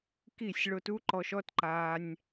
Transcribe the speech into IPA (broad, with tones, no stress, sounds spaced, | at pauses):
k i˦˨ sʲ ɭ o˧ t u˦ ǃ ɔ˧ ʃ ɔ˦ t ǃ aː˧ nʲ